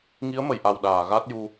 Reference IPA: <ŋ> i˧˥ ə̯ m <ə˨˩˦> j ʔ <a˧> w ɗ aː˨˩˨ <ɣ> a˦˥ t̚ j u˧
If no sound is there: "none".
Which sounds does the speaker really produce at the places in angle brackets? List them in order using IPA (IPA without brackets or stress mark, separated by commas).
ŋ, ə˨˩˨, a˨˩, ɣ